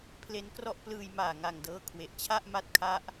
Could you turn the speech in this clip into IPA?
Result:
pʰ l e˦˥ n k r ɔ˦˥ ʔ p l ɯː˧ j m aː˨˩ ŋ a˨˩ ŋ d ɤː˧ kʰ w e˨˩ ʔ t͡ɕʰ a˥˩ ʔ m a˦˥ t̚ kʰ a˦˥ ʔ

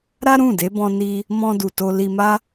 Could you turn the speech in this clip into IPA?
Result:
ɾ a˦ ɾ ũ˦˨ d e˨˦ b ɔ̃˧ n i˧ | m ɔ̃˧ d u˨ t o˧ l i˧ m a˦

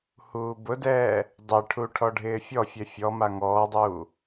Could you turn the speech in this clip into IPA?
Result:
h uː b ʊ d ɛː | dˤ ɪ ʈʰ u ʈʰ ɔ ɖʱ ɪː fʲ ɔ fʲ ɛ fʲ ɔ m a ŋ ɔː dˤ uː

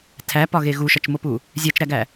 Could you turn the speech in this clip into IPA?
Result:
tʰ æ p ɒ ɣ e ɣ u ʃ ɒ t͡ʃ m o p u | zʲ æ t͡ʃ ɾ æ ɡ æ

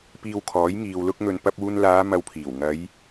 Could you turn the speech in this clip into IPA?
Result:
p iː˧ w kʰ ɔː˨˥ j ŋ iː˨ w l ʊ˧ k̚ ŋ ɵ˨ n p ɐ˧ p̚ uː˧ n l aː˨˧ m ɐ˧ w pʰ iː˨˩ w ŋ ɐ˨˧ j

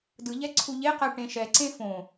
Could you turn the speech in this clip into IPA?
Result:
d ɯ ʎ ɛ ǀʰ u ʎ e q ɛ ʈ ẽ ʃ ɛ ǀ ẽ f õ

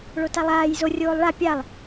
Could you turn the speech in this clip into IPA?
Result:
ɭ o t a lˠ aː j z o rʲ oː lˠ ɭ a pʲ a lˠ

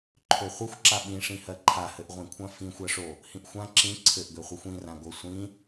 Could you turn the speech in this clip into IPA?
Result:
ǃʰ ø χʷ ɘ xʷ ǁ a ɓ ĩ ʂ ĩ h ɜ ǃʰ a h ɘ ʔ ʁʷ ĩ kʷʰ ã f ĩ xʷ ɜ ʂ o | h ĩ ʔ xʷ ã ǁ ĩ ǀʰ ɘ ʔ ɡ ø χʷ i xʷ ĩ r ã ɡ o sʷ ĩ

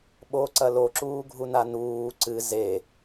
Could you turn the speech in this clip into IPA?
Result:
ɓ o ǀ ɐ l o ǁ uː ɡʱ u n a n uː ǀ ɨ z e

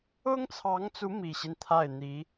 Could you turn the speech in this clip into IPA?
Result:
ʊ˥ ŋ t͡sʰ ɑ˧˥ ŋ t͡s u˧˥ m i˨˩ ɕ i˦ n t̪ʰ a˥˩ ɪ̯ n̪ i˧˥

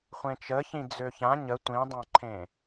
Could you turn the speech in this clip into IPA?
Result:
χʷ ẽ t͡ʃ ə ç ĩ d͡z ø ç ã ɲ ə tʷ ĩ dˤ ã ǃʰ ẽ

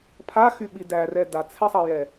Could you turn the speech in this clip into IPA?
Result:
pʰ a x y ɓ i d æ r ɛ d a t͡sʰ ɛ sˤ ɑ j ɛ

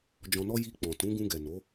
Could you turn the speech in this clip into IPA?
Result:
d͡ʒ ɔ̃˧ n ɔ˦ j i˧ k͡p ɔ̃˨ t ũ˨˦ ɡ ũ˧ ɡ ɛ˨ n o˨˦

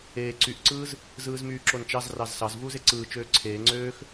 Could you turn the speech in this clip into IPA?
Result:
eː ǀ y ʔ ǀ ɯː z | z ɯː z m yː ǁ o n t͡ʃ ɑ z r ɑ z s ɑ z v uː z e ǀ ɯː t͡ʃ øː ǀʰ eː ŋ͡ǀ øː x

